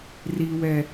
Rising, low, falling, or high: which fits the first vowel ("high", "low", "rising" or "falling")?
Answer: high